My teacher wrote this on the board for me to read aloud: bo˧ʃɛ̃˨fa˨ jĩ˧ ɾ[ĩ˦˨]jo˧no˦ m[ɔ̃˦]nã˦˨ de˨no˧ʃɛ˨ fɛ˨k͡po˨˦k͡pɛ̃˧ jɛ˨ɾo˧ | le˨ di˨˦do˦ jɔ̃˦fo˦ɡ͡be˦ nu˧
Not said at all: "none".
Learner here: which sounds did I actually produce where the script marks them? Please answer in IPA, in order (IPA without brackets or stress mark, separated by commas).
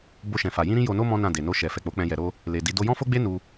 ĩ˦, ɔ̃˦